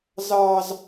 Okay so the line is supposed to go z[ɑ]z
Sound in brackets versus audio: correct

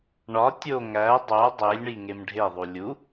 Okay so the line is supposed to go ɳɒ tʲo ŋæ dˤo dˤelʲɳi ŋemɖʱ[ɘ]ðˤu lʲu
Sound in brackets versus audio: incorrect: e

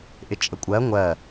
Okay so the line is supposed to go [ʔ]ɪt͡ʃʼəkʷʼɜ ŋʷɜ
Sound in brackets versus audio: correct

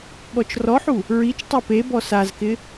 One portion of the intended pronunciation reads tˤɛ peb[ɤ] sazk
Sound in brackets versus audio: incorrect: ɔ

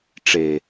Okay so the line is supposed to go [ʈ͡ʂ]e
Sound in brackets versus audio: correct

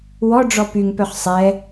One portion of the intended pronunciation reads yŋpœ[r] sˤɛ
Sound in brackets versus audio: incorrect: χ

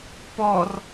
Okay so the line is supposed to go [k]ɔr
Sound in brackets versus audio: incorrect: p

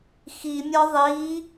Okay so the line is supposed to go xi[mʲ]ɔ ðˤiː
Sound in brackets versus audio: correct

